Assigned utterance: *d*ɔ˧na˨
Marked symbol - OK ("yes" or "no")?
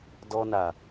yes